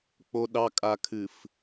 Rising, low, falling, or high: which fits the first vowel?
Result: low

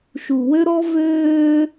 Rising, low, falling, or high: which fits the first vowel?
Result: low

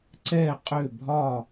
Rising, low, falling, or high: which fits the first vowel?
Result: falling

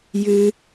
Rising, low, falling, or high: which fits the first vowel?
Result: high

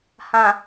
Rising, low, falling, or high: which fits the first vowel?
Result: low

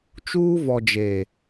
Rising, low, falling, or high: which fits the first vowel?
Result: high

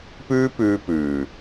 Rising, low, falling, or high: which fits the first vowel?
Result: high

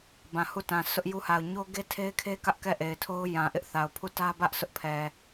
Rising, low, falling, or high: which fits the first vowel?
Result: low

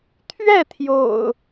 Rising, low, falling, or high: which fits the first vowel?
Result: falling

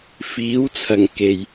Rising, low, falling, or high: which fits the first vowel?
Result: rising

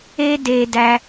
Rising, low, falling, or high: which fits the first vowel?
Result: high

